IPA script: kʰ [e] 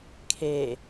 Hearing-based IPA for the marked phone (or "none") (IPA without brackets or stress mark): e